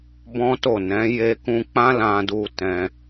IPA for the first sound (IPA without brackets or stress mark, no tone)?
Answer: b